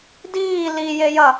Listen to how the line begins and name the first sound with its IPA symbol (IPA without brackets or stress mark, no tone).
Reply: d